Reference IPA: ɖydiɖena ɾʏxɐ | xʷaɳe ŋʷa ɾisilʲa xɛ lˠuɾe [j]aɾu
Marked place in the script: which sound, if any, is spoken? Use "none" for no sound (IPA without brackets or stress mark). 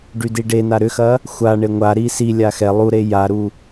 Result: j